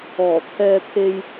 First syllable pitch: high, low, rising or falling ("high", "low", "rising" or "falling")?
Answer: low